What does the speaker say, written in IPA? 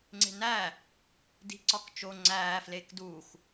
ŋ͡ǀ e̤ n æ | d i̤ ǀ ɒ k t͡ʃ o ŋ͡ǀ æː f l eː k d u x

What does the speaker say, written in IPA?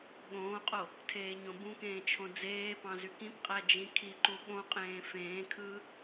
ɠ õː qʼ o | tʰ eː ɲ õ b ũ k ẽː t͡ʃʰ õ d͡z eː p ɑ̃ z y k ĩ p qʼ æ d͡ʒ ĩ kʰ i ǃ u ɠ õ qʼ ẽː f ẽː kʰ ɯː

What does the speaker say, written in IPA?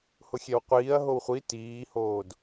h ʊ xʲ ɛ w qʷ iː ɐ̯ ɦ o w χʷ i t iː h oː d

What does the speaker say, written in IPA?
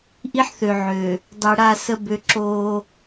ʔ i˦ ħ θ ø˨ ʕ øː˨ | dˤ i˨ ɽ a˦˨ s ə˦ b ø˦ ǁ oː˦

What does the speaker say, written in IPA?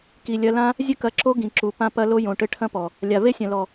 k i˨ lʲ ɐ˧ l ã˦ | zʲ ɘ˧ k ɐ˨ ǁ o˧ ɡ ĩ˨ ǁ u˨ p ã˧ p ɐ˧ l o˧ j õ˨ ʈ ɘ˧ ʈʰ ɐ̃˦ p ɔ˨ | lʲ a˨ v e˦ sʲ ɐ̃˨ l ɔ˨

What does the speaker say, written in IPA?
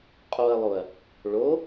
qʼ o ɐ̯ lˠ o ɐ̯ | ɭ o

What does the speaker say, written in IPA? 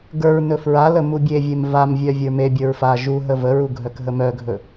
ɡ ə˞ ɹ n ɵ f ɹ a l ə m u bʲ e vʲ e m v a m vʲ œ vʲ ə˞ m e bʲ ə˞ ɹ f a ʒ u ɦ ə v ə ɹ u ɡʱ œ k ɦ ə m œ ɡʱ ɵ

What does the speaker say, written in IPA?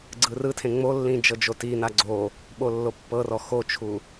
ɡ͡ǀ ɯ r ɯ tʰ ẽ ŋ͡m o lː ĩ d͡ʒ ɤ d͡ʒ o t i n a ɡ͡ǀ o | ɓ o lː o pː ɤ r ɔ x o t͡ʃʰ u

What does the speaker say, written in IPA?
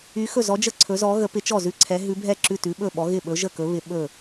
y˧˥ x ɵ˥˨ z ɔ˧˥ d͡ʒ ə˥˨ ǀʰ ɵ˧˥ z ɔ˧˥ ɣ ə˧˥ p ɪ˧˥ t͡ʃ ɔ˥˨ z ʉ˥˨ ǀʰ ɛ˧˥ ɦ ʉ˧˥ bʱ ɛ˥˨ ǁ ʉ˥˨ t ʉ˧˥ ɓ ɵ˥˨ ɓ ɔ˧˥ ɣ ɪ˥˨ ɓ ɵ˧˥ ʒ ə˥˨ k ɵ˧˥ β ɪ˧˥ ɓ ɵ˥˨

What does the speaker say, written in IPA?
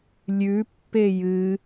lʲ ʉ pː e j ɨ

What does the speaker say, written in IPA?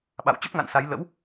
ɓ a̰˧˨ w t͡ɕ ə˦˥ p̚ ŋ a̰˧˨ n s a˨˦ j l ə̰˧˥ w

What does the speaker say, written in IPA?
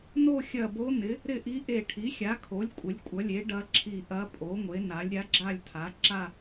n o˥˧ xʲ ɐ˧˩ b o˧˥ n ɪ˩˥ | ɾ ɪ˥˧ ʔ i˧˥ ʔ e˧˩ ʈʰ i˩˥ xʲ a˩˥ kʰ o˩˥ lʲ kʷʼ ɪ˩˥ lʲ kʷʼ ɐ˩˥ lʲ e˩˥ ɖ ɐ˧˥ ǁʰ i˧˩ ʔ ɐ˧˥ pʼ o˩˥ ŋʷ e˩˥ n a˩˥ lʲ ɾʲ a˧˥ ɡ͡ǁ a˥˧ lʲ tʰ a˩˥ ǁ a˥˧

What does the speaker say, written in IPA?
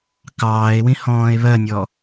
k ɑː e̯ w ĩ h ɔ̃ː e̯ β ɜ nʲ ɔ

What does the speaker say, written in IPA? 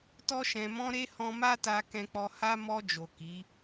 t ɔ˧ ʃ ɛ̃˨ m ɔ̃˧ ɾ e˦ h ɔ̃˧ m a˦ t a˧ k ɛ̃˧ k͡p ɔ˧ h a˦ m ɔ˧ d͡ʒ o˨ k i˨˦

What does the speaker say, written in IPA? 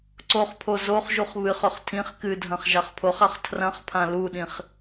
ǀ o χ pʰ o z o χ ʒ u χ β ɨ χ ɵ χ tʰ ĩ χ k ɨ dʱ ɐ̃ χ ʒ a χ pʰ o χ a χ tʰ r ɐ̃ χ pʰ ã l u ɗ ĩ χ

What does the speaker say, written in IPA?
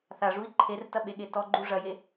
θ a ʐ u i̯ ǃʰ e r t ɐ ɓ e ɠ e t ɔ ɡ͡ǃ u ʐ ɐ j e

